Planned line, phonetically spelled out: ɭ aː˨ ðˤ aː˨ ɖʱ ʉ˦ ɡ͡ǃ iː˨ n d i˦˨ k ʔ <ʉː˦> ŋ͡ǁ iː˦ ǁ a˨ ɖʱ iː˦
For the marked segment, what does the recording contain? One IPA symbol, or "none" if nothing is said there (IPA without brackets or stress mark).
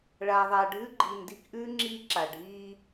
ʉː˦